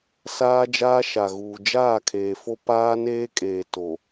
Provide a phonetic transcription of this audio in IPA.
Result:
s aː˦ d͡ʒ aː˦ ʃ a˨ ɣ uː˨ d͡ʒ aː˦˨ kʰ eː˨ f o˦ p aː˦ n eː˦ kʼ eː˨ t o˨

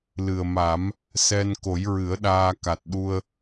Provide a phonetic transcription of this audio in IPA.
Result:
l ɨ˨˩ ə̯ m a˨˩˦ m | s ɛ˧ n k o˨˩˦ j ɹ ɨ˨˩˦ ə̯ ɗ aː˧ k a˨˩ t̚ ɗ u˧ ə̯

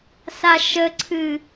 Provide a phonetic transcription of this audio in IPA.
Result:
s a ʃ ə ǀʰ ɨ

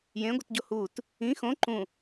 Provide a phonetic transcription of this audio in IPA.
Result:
j ẽ ɡʷ ə t ɟ o h u t | ĩ x õ ǃ ũ

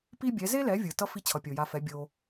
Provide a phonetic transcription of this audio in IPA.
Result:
p i˥ bʲ ɛ˩˥ z e˥ l ɛ˩˥ vʲ ɯ˩ t ʌ˥ f i˥˩ t͡ɕʰ ʌ˩ pʲ o˩ j a˧ f ɛ˩˥ bʲ o˩

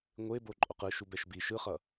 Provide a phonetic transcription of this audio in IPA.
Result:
ŋʷ e b o ǃʼ o q ɯ ʃ u b ɛ ʃ b i ʃ ɯ χ ʌ

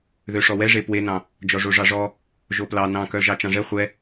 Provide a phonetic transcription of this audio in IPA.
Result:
ð ø ʂ ɔ w ɛ ʐ e p w e n ɑ̃ | d͡ʒ ɔ ʐ o ʐ ɑ ʐ ɔ | ʒ o p l ɑ n ɑ̃ k œ ʒ ɑ t͡ʃ ɑ̃ ʐ ɛ χʷ ɛ

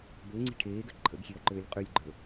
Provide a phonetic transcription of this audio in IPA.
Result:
b ø ŋ͡ǀ i̤ ʈʰ eː ɡ ø ǃʰ ə̰ ɡ xʲ e ɐ̯ ǃ øː lʲ qʼ ʉ lʲ ɡ͡ǃ ə˞

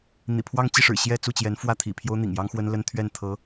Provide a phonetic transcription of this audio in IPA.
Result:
n̪ ḭ˨˩ pʰ w ɑ˥˧ ŋ t͡ɕ i˥˩ ʂ ɻ̩˨˩ ɕ j ɛ˥˧ t͡s u˥˩ t͡ɕ j ɛ˧˥ n f w ä˥˩ t̪ʰ ḭ˨˩ pʰ j o˥ ʊ̯ n̪ ḭ˨˩ ŋ j ɑ˥ ŋ x w ə˥ n l ə˥ n t̪ʰ ɥ ɛ˥˩ n t̪ʰ ɤ˧˥

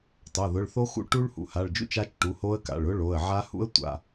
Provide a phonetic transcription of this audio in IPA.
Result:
tˤ o˩˧˩ ð ʊ˩˧˩ ɭ θ o˦˥ x ṵ˦˥ ʈ u˦˥ ɭ h ṵ˩˧˩ h a˩˧˩ ɭ d͡ʒ ṵ˦˥ t͡ʃ a˦˥ t͡ʃ ʈ u˩˧˩ h o˦˥ ə̯ k a̰˩˧˩ ɭ ʊ˦˥ ɭ o˩˧˩ ə̯ ʕ a˦˥ h ṵ˦˥ ə̯ tʷ a̰˩˧˩

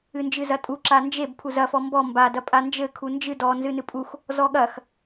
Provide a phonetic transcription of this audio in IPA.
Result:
ɨ n d͡ʒ ɨ z ɐ tʼ u ǁ a n d͡ʒ e b pʰ u z ɐ f ɔ m b ɔ m b a d ɐ pʼ a n d͡ʒ ɘ kʰ u n d͡ʒ ɨ d ɔ n z ɨ n ɨ pʼ u x | z ɔ ɠ ɐ x

